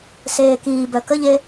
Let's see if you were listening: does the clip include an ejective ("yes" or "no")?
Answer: no